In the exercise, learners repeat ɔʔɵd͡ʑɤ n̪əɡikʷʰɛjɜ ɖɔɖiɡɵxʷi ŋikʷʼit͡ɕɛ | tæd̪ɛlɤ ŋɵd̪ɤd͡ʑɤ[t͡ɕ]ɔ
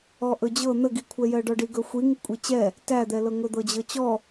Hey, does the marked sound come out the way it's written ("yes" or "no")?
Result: yes